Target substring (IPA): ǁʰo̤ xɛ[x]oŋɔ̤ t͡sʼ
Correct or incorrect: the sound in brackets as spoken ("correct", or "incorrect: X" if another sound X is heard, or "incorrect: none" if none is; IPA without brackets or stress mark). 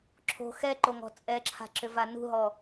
incorrect: ǃ